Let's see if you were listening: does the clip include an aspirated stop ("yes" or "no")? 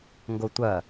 no